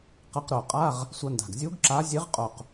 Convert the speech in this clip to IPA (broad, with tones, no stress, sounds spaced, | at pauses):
q ɐ˧˥ q ɾ o˨˩ qʼ a˧˥˧ ʁ | sʷ ɐ˧˥ n d a̤˨˩ ɡ zʲ u˧˥ ɡ ǁ a˧˥ zʲ e˧˥ ʁ qʼ o˨˩ q